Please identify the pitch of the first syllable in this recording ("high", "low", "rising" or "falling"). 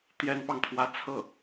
high